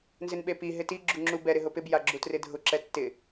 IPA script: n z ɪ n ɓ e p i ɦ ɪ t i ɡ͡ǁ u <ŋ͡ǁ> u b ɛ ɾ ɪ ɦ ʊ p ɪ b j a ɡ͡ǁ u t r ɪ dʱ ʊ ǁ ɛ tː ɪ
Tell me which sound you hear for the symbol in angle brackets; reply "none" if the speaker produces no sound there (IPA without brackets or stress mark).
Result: ŋ͡ǁ